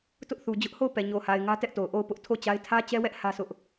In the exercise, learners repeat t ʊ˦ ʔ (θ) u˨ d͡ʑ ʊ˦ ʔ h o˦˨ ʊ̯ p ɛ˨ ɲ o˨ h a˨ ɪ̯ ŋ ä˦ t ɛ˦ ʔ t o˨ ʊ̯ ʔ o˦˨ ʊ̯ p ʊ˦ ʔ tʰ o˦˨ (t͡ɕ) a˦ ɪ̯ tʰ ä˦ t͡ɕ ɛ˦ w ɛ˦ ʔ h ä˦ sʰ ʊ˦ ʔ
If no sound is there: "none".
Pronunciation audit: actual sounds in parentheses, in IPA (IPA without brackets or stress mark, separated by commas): θ, t͡ɕ